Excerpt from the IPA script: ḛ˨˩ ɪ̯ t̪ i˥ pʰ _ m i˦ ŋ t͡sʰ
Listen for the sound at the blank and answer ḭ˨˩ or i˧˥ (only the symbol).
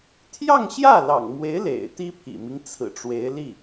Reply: ḭ˨˩